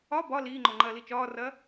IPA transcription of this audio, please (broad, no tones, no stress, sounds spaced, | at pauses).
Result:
ɒ b ɒ l iː ŋ͡ǃ ɔ ŋ͡ǃ ɐː l i t͡ʃ ɒː r ɐː